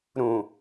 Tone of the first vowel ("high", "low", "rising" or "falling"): low